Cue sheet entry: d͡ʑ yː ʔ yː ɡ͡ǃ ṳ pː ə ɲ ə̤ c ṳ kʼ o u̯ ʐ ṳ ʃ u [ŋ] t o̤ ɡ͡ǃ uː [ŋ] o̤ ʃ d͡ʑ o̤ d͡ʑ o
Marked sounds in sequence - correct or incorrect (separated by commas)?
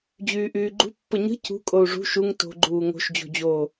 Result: correct, correct